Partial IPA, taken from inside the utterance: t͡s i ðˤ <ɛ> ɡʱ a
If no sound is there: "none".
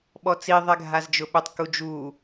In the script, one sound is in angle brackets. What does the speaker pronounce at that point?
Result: ɛ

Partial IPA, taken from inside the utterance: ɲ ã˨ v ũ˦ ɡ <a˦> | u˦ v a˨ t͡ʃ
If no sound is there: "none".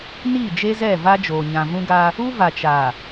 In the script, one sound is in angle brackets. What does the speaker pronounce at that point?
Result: a˦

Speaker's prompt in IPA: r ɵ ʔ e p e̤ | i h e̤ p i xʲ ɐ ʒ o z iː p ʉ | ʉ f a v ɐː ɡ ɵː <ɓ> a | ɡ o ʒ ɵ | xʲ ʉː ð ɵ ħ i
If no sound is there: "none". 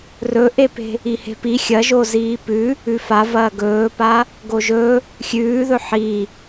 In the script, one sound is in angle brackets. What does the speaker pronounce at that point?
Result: p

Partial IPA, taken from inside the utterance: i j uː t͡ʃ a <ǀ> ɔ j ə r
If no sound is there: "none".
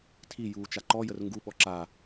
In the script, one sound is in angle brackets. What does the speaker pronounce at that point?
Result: ǃ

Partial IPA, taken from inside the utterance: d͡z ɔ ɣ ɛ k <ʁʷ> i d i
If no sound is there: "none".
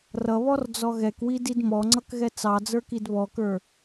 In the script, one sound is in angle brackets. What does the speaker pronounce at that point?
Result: w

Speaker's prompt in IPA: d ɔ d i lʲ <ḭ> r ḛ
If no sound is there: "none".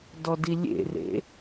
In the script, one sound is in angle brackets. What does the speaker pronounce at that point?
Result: ḛ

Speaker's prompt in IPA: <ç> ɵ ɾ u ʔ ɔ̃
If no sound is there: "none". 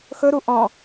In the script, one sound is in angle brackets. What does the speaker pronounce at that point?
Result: x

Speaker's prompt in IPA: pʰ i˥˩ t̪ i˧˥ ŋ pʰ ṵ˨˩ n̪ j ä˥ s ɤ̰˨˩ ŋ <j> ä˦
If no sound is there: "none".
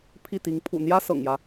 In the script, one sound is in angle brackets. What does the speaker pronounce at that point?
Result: j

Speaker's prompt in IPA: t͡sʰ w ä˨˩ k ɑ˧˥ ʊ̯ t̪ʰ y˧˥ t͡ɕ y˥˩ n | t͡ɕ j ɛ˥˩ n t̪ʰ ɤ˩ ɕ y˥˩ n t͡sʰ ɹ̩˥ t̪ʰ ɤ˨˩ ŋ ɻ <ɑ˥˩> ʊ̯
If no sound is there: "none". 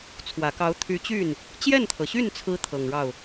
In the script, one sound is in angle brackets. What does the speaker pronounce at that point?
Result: ɑ˥˩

